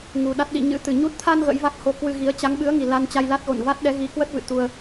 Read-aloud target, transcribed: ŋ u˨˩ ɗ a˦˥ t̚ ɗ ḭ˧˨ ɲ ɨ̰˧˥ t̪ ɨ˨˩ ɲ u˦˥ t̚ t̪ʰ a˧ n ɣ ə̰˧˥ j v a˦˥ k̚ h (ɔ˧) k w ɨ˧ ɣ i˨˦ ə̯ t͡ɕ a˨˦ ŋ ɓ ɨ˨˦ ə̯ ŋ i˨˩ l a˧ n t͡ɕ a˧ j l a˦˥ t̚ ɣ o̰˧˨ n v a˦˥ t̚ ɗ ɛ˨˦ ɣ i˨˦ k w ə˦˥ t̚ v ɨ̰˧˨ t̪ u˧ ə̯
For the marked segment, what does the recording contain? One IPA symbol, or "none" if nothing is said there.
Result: o˧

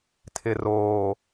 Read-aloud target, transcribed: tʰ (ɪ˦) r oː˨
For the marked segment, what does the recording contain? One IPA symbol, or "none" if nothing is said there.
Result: ɪ˨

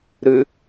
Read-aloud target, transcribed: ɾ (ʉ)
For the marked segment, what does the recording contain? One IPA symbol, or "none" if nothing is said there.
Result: ʉ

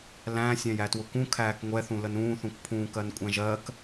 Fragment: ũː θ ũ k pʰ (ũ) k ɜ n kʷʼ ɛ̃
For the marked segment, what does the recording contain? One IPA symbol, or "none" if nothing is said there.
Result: ũː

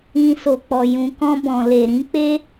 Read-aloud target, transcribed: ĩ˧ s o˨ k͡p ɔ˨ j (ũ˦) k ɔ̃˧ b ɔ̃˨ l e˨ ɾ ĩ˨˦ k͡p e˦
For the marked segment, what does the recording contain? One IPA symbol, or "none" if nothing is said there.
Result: ũ˨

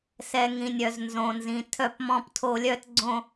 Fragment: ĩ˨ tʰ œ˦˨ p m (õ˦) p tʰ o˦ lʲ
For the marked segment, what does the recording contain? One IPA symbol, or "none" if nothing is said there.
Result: ɔ̃˦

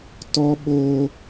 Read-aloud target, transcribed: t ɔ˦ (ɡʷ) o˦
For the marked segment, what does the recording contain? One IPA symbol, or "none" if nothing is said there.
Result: ɓ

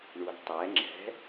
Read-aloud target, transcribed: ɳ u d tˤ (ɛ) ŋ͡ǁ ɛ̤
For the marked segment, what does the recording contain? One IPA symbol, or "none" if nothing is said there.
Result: ɛ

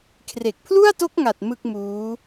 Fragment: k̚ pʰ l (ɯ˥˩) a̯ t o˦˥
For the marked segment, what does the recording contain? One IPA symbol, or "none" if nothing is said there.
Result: u˥˩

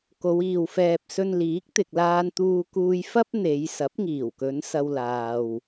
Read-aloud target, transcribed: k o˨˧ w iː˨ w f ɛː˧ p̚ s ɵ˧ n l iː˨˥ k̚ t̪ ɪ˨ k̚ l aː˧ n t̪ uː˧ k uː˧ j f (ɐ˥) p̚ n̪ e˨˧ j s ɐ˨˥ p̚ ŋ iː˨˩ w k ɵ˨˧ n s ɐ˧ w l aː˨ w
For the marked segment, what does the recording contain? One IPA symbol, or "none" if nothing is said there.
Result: ɐ˥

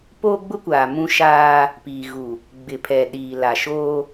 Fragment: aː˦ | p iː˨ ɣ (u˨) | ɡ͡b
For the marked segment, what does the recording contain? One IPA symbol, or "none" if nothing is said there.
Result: u˨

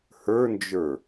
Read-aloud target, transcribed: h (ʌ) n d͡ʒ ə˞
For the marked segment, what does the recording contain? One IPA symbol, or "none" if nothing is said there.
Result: ə˞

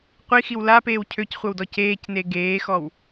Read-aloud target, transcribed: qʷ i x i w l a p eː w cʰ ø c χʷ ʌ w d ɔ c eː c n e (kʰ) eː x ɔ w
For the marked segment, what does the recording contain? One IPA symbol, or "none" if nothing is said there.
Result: ɡ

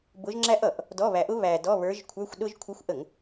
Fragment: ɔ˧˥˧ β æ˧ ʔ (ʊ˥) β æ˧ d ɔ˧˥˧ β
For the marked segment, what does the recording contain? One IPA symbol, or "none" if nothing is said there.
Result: ʊ˥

